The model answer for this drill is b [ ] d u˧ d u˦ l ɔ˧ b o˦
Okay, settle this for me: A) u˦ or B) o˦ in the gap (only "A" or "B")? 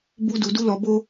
A